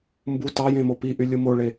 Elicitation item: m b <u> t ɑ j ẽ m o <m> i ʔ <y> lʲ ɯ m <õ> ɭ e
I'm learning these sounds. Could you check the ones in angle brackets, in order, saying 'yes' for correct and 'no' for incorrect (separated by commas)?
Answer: yes, no, yes, no